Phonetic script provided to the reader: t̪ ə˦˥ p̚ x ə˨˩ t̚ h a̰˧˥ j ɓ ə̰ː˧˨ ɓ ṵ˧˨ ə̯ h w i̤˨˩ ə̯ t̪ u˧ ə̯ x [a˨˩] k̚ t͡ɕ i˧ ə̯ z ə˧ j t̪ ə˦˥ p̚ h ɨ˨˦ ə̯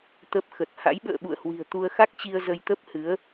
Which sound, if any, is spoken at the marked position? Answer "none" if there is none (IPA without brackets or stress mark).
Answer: a˦˥